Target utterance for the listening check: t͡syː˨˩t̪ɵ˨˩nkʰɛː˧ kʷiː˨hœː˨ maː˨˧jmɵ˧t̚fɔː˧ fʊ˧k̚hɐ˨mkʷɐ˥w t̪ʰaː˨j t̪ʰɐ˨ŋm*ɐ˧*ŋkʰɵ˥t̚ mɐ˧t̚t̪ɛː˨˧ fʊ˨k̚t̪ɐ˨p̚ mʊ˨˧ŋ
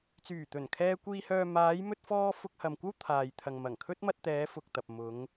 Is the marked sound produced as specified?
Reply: no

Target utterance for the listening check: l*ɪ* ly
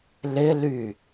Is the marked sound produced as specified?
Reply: yes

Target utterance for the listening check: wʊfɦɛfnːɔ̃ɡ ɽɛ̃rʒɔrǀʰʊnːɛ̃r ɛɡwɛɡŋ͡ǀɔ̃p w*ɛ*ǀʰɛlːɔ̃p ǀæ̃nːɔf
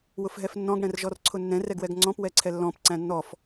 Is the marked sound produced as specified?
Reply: yes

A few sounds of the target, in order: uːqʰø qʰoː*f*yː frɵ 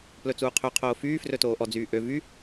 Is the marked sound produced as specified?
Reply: yes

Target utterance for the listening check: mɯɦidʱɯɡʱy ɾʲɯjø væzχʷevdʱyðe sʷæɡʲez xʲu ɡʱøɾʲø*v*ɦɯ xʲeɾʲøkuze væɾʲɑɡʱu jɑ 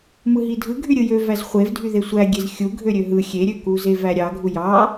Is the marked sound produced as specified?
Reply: no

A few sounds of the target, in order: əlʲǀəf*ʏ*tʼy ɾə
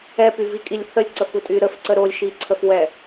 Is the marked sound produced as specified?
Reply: no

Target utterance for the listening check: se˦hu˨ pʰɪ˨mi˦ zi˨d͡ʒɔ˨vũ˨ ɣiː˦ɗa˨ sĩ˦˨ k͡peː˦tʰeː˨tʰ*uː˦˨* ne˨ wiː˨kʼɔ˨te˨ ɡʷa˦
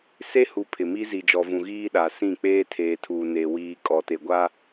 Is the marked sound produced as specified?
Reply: no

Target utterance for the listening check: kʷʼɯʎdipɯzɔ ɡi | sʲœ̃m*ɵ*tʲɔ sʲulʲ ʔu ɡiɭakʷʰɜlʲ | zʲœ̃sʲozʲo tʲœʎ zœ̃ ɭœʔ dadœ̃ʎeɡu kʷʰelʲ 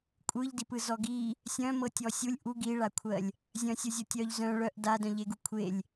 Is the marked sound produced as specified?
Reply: no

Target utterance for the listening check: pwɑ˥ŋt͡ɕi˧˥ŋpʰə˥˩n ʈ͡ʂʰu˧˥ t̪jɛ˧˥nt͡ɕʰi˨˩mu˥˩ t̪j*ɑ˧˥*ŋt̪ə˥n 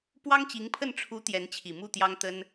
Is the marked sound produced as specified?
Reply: no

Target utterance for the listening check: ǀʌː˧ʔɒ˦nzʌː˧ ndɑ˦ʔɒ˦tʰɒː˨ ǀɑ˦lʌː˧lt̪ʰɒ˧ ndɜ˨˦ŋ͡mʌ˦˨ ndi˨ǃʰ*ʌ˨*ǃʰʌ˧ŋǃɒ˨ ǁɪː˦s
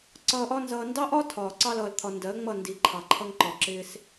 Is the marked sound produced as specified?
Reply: no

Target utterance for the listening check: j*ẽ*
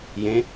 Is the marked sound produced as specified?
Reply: yes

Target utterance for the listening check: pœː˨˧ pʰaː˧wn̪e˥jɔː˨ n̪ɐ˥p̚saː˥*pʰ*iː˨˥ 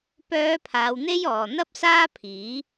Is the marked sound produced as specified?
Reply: yes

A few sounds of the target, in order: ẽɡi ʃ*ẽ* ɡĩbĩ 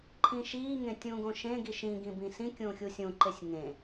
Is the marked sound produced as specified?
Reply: no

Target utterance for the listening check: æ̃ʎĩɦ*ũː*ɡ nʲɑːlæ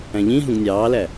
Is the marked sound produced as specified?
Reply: no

